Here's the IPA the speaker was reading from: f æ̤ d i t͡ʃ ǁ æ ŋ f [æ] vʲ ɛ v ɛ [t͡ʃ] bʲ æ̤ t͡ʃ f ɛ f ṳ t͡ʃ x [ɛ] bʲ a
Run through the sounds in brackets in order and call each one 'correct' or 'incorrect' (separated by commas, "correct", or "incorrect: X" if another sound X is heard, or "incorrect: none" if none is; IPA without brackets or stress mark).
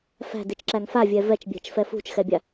incorrect: a, correct, correct